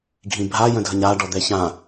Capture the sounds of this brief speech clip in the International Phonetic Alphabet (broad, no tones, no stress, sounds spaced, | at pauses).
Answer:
ɡʱ ĩ bʱ a j ə̃ dʱ ə ɲ a ɖ ɔ d̪ ɛ ç ã